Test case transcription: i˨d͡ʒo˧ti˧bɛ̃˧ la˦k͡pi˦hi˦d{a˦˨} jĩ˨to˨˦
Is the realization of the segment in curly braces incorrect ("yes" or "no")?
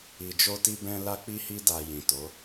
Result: yes